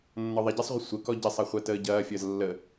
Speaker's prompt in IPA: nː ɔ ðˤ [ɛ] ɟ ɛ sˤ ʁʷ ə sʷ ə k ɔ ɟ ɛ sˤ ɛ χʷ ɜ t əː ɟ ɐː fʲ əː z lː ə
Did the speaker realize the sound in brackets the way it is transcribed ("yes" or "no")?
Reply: yes